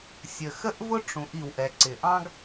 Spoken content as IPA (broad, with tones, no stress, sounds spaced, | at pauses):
sʲ ə˩ x ə˥ ʔ v ʊ˥ ʈ͡ʂ ũ˩˧ ʔ i˩ w ʔ ɛ˩ ǀ ɪ˩ ʔ ɑ̃˥ ɡ